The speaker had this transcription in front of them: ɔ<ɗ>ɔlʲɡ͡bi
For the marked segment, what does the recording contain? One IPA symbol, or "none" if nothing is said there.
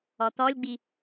t̪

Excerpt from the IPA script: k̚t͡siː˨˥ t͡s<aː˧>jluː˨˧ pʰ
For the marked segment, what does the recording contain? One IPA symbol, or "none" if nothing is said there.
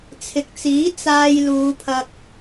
aː˧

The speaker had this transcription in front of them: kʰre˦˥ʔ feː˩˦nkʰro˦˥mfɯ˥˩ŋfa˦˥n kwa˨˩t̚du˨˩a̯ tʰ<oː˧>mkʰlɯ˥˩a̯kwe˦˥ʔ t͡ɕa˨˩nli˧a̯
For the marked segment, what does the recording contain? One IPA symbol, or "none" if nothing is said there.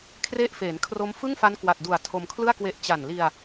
o˧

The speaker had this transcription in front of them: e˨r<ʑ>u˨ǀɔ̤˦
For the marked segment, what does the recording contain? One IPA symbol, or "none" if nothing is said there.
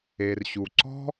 ɕ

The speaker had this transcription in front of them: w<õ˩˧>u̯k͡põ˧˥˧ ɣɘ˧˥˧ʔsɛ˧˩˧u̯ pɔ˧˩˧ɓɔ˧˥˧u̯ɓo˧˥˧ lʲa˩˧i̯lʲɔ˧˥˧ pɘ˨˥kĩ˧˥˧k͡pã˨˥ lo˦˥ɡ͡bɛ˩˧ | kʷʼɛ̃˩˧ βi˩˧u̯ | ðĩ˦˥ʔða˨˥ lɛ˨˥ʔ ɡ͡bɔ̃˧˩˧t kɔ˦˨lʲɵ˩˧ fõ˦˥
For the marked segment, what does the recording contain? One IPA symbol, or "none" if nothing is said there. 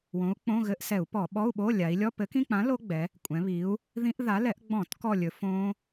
õ˨˥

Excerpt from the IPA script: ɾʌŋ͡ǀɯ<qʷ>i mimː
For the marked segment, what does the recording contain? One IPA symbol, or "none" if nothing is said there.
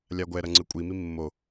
kʷʼ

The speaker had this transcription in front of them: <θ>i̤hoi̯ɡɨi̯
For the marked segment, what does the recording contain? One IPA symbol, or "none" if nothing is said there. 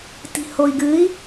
t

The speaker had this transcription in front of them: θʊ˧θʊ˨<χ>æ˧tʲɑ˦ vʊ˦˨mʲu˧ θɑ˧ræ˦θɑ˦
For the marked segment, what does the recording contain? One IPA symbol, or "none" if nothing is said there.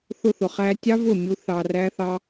χ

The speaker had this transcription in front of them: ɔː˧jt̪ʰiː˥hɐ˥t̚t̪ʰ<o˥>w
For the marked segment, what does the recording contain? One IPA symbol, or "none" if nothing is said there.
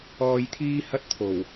o˨˩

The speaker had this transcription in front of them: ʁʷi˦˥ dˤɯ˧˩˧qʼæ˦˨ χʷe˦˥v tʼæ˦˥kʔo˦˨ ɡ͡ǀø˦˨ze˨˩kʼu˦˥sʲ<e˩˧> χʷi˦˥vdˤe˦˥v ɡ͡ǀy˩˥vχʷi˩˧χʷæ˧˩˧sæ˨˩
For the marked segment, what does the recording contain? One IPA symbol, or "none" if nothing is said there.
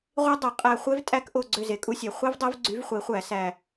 e˨˩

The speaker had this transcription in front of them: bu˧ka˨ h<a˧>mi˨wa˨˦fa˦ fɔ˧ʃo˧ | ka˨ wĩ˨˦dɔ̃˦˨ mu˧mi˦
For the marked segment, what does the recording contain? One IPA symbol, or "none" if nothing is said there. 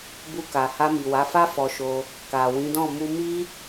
a˧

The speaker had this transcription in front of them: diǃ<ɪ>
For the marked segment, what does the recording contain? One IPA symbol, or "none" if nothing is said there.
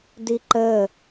ə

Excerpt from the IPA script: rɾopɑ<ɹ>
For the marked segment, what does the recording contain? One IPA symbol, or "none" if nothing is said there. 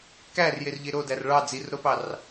r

